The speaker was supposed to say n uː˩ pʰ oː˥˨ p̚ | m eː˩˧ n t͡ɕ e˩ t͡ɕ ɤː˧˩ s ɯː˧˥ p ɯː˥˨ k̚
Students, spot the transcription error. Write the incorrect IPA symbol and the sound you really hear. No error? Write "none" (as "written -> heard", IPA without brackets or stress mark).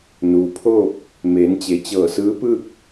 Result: none